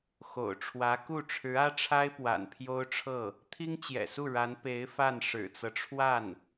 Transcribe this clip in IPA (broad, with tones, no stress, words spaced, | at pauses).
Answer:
xo̰˨˩ʊ̯ʈ͡ʂʰwä˧˥ku˥˩ ʈ͡ʂʰɻ̩˧˥ä˥ʈ͡ʂʰa˥ɪ̯ pwa̰˨˩npʰjo˥ʊ̯ʈ͡ʂʰɤ˥˩ | t̪ʰi˥ŋt͡ɕjɛ̰˨˩su˥˩ ɻa˧˥n pe˧˥ɪ̯ fa˥˩n ʂɻ̩˨˩t͡sɤ˦ʈ͡ʂʰwa˥˩n